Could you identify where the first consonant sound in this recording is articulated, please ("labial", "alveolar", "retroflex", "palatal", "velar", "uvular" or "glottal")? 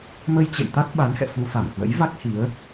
labial